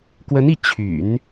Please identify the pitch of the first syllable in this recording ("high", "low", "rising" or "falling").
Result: rising